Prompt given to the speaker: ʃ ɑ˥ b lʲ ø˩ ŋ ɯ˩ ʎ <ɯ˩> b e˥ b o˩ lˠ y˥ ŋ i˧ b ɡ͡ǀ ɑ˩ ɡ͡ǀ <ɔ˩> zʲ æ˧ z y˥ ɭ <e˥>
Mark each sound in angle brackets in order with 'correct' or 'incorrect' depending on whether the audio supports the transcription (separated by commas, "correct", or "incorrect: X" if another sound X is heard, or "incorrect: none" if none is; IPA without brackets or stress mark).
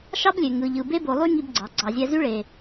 correct, incorrect: ɑ˩, incorrect: e˩